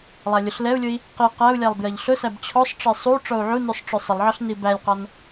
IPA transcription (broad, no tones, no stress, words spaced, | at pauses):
lˠælʲʊɬlɛu̯lʲʊi̯ | qi qæu̯lʲælˠ bjɜʎɬʊsæb t͡ɕʰɔsˤʈ͡ʂɜ sˤu ʈ͡ʂɔu̯ʕunusˤ ʈ͡ʂʊsˤɪlˠʕɒɬ nibælʲqɒn